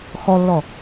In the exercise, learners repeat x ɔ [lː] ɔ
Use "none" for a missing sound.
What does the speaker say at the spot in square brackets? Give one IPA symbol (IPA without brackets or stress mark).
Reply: lː